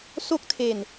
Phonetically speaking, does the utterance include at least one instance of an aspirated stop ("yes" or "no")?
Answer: yes